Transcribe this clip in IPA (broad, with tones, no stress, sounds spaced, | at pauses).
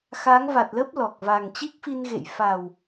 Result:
x aː˨˦ ŋ v a˨˩ t̚ l əː˦˥ p̚ l ɔ˨˩ k̚ v a˨˩ ŋ t͡ɕ i˦˥ k̚ f i˧ n ɣ ḛ˧˨ j f a˨˩ w